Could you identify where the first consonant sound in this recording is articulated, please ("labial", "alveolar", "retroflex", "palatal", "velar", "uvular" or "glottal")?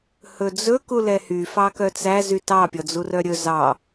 glottal